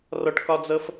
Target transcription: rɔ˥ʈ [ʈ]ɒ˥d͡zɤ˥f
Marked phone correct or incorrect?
incorrect